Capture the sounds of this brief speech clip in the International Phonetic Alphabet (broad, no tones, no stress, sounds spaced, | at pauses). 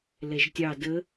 l ɛ ʒ tʲ ɑ d ə